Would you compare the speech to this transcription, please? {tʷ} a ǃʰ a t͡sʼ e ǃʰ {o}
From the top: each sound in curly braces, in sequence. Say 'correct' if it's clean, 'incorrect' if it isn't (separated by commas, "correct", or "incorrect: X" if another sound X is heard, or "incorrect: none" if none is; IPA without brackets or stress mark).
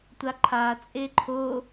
correct, correct